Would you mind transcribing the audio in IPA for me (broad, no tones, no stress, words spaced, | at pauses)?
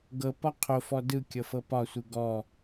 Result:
ɡɤpɒ qʰofɔ dɯ kʲɤfɤpɒsʷɯ ɡɔ